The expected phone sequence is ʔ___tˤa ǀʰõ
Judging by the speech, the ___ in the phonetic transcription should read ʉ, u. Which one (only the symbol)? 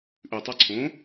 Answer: ʉ